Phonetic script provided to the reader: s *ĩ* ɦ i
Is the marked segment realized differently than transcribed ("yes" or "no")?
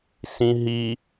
no